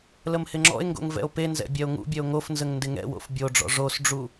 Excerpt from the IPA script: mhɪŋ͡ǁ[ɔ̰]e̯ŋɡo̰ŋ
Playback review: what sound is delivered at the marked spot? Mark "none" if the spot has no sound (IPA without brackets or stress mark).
ɔ̰